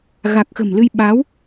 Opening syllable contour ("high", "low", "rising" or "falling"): low